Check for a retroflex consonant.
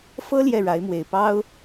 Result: present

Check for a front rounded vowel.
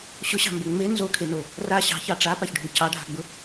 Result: absent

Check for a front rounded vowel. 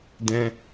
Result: absent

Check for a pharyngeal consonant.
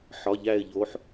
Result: present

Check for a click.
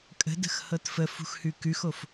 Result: absent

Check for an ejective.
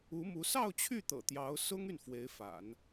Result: absent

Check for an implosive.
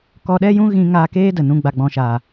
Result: present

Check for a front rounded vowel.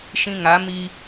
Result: absent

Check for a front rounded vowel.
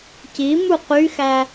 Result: present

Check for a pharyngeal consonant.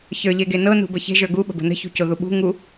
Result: absent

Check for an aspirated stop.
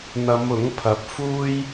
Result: present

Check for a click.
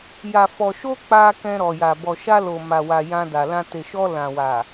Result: absent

